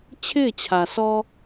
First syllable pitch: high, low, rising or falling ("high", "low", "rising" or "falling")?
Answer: falling